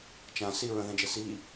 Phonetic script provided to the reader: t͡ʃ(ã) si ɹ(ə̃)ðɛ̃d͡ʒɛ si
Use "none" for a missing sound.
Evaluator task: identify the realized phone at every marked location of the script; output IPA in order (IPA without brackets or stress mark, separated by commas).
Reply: ã, ə̃